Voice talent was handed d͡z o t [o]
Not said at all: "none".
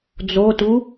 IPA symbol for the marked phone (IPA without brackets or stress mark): u